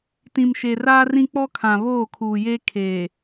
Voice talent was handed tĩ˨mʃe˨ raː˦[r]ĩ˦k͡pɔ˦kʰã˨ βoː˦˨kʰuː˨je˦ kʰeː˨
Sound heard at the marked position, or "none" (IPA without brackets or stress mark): r